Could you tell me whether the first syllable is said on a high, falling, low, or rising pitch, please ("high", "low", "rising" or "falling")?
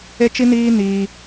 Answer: high